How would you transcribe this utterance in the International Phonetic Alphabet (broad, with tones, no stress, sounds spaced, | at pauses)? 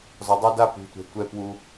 z ɒ˨ dˤ o˦ d a˦ p ṳ˨ tʷ ɛ̤˨ tʷ ɛ˦ p w u˦